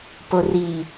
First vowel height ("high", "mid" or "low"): mid